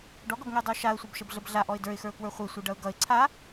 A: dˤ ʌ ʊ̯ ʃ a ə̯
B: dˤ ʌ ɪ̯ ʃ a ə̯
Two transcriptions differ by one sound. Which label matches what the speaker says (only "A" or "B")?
A